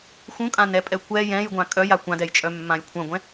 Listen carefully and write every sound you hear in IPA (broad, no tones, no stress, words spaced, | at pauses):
xũkʼãnɛpʼɛ kʷɛ jɛ̃jɡʷã kʼœja kʷãdɛjt͡ʃʼœmːãj kʷʰœ̃ɡʷɛ̃